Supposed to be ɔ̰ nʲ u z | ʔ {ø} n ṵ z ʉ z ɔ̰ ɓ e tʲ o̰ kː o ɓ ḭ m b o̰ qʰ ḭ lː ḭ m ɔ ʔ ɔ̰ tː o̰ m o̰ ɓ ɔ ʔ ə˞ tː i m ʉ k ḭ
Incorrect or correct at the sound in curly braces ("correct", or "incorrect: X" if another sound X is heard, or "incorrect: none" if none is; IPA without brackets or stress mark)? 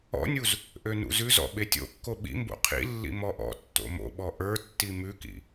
correct